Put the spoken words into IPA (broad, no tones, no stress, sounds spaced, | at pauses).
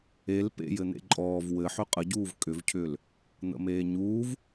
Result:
e l p ḛ j ɘ n̪ ḛ ǃʼ ɔː v w ɘ ħ ʏ qʼ ə ɟ uː v kʼ ʏ v cʰ ʏː l | n̪ ə̰ m eː ɲ uː v